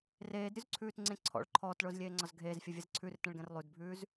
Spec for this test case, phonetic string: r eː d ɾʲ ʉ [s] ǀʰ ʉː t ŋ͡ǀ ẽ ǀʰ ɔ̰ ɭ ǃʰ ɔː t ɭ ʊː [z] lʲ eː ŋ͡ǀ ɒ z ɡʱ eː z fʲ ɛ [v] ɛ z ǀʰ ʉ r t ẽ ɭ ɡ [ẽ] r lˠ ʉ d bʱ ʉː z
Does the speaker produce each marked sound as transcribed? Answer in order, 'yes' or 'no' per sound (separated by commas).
no, yes, no, no